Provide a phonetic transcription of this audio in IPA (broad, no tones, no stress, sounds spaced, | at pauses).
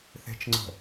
θ e̤ t͡ʃ ŋ͡ǀ ə̤